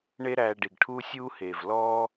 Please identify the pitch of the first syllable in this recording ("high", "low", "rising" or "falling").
high